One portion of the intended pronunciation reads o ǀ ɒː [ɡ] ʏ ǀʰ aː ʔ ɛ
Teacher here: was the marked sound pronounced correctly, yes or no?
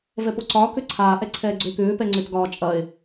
no